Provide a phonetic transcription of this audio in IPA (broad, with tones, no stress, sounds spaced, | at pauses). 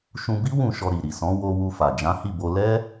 ʃ ũ˧ b i˦ w ũ˦˨ ʃ ɔ˧ ɾ i˨ ɾ i˨ s ɔ̃˨˦ w o˧ w u˧ f a˨ d͡ʒ ã˨˦ h i˦˨ b o˧ l ɛ˦